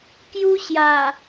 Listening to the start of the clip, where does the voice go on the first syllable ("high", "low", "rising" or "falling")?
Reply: high